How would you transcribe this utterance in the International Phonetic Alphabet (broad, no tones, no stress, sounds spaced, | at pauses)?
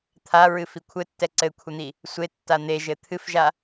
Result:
t̪ʰ a ɹ ɨ f i kʷʰ ɘ tː ɛ ǀ ɘ kʷʰ ɛ n̪ i | sʷ e tː a n̪ e ʒ ɘ t̪ʰ ɨ f ʒ a